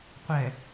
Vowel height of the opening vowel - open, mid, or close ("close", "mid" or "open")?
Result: mid